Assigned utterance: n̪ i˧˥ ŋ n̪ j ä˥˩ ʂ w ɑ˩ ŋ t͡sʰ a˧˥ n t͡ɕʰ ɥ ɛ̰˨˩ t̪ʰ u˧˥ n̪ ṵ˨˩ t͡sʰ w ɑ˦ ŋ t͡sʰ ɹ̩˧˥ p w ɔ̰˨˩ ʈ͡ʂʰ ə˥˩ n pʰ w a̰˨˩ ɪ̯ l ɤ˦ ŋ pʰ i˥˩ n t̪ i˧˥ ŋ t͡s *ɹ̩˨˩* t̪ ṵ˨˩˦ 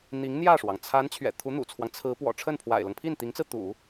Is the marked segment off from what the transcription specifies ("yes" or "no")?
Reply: yes